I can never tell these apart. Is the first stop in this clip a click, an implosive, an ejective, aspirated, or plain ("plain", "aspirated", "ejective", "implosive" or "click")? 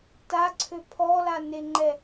plain